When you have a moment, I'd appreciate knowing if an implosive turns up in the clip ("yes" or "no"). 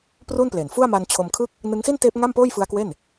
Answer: no